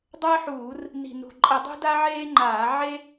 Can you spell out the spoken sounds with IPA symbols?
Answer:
dˤ əː˥ ħ uː˧˩˧ r | n i̤˨˩ n ṳ˨˩ ǃʼ ə˧˩˧ dˤ ṳ˥ d a˥ ʕ eː˥ ŋ͡ǃ aː˧˩˧ ʕ e˥

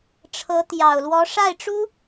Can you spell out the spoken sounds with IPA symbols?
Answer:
ʈ͡ʂʰ ɤ˧˥ t̪ j ɑ˨˩ ʊ̯ l w ɔ˧˥ ʂ a˥˩ ɪ̯ ʈ͡ʂ u˥

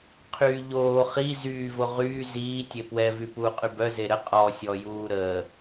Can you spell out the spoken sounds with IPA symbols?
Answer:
qʰ yː ʎ oː χ i z yː v o ʁ yː z iː tʲ e p w ɛ v y p uː qʼ y b œ z e ɾ ə qʼ ɔ sʲ ɔ j uː ɾ əː

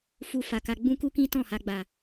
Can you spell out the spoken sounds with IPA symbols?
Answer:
f u˨ f a˨ k a˧ ɡ͡b ũ˦ k u˦ k ĩ˦ t ɔ̃˦˨ h a˧ ɡ͡b a˨

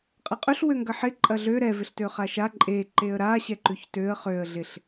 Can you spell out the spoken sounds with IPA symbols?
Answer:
qʼ ɐ qʼ ø ɬ w ø ŋ ɡ ɐ ħ ɪ ǃʼ ɐ ɮ ø ɾ ɛ v ɪ ɬ t ø χ a ʃ a ǃʼ e ǃ e ə̯ ɾ a ɕ ɛ ǃ ʉ ç t ø ə̯ χ ø ə̯ ɮ ɪ ɬ

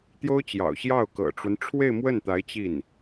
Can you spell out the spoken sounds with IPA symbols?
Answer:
t̪ j o˥ ʊ̯ t͡ɕ j ɑ̰˨˩ ʊ̯ ɕ j ɑ˥˩ ʊ̯ k ɤ̰˨˩ ʈ͡ʂ w ə˦ n ʈ͡ʂʰ w e˥˧ ɪ̯ m w ə˥˩ n t̪ a˧˥ ɪ̯ t͡ɕ i˥˩ n

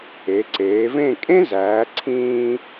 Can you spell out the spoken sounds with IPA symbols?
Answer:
e˩˧ ǀ eː˩˧ v ẽ˥˧ kʼ ẽ˥ z æː˩˧ ǀʰ ĩː˧

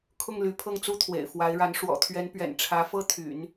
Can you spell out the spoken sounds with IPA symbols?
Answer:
kʰ ʊ˥˩ ŋ l y˧˥ pʰ ɤ˥˩ ŋ t͡s u˥ t̪ʰ w ḛ˨˩ ɪ̯ f w a˧˥ ɪ̯ ɻ a˧˥ n ʂ w ɔ̰˨˩ t̪ʰ ɥ ɛ˧˥ n p ɥ ɛ̰˨˩ n ʈ͡ʂʰ ä˧˥ f ɤ˥ t̪ʰ y̰˨˩˦ n

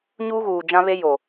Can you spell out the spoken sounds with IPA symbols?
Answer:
ɲ uː˦ ɣ uː˨ d͡ʒ ã˦ β e˦ j o˨

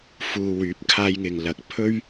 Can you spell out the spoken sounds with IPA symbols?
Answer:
f uː˨ w yː˨˥ p̚ kʰ aː˧ j ŋ ɪ˨ ŋ l ɐ˨ k̚ pʰ ɵ˥ ɥ

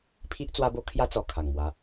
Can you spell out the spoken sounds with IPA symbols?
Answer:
pʰ i˦ ʔ t͡s w a˦ b o˦ kʰ j a˦ t͡s ɔ˨˩ kʰ a˨˩ ŋ m w a˧

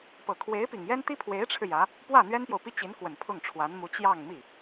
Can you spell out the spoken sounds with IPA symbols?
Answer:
p ɤ˨˩ kʰ w e˧˥ ɪ̯ p i˨˩ ŋ j ɛ˥ n t̪ i˥ pʰ w e˧˥ ɪ̯ ʈ͡ʂʰ ɻ̩˧ j ä˧˥ | p w ä˥˩ n̪ ɥ ɛ˥ n p j o˨ ʊ̯ p i˥ t͡ɕ i˧˥ n k w ə˨˩ n pʰ ʊ˥˩ ŋ ʈ͡ʂʰ w a˧˥ n m u˧˥ t͡ɕ j ɑ˥˧ ŋ m i˥˩

